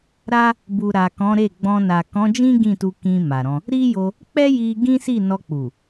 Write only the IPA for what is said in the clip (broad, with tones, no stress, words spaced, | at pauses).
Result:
ɾa˦ | bu˨ɾa˨ kɔ̃˨˦ɾe˦˨ɡ͡bɔ̃˧ na˨kɔ̃˨˦d͡ʒĩ˦ ɡĩ˦˨tu˧ kĩ˧ ma˨ɾɔ̃˧ | ɾi˦jo˧ | k͡pɛ˦ji˧ ɡĩ˦si˦˨ nɔ˧k͡pu˨